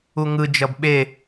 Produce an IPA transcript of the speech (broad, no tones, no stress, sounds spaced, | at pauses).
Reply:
u ŋ ɯ d͡ʒ ʌ b ɓ e